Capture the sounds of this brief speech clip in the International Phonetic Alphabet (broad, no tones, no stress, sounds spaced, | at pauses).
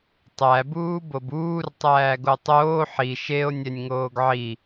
tˤ æ b uː b o b uː r tˤ æː ɡ o tˤ oː ħ i ʃ e o̯ nʲ ɛ nʲ ŋ oː ɡ ʕ i